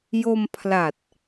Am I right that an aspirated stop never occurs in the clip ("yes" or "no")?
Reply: no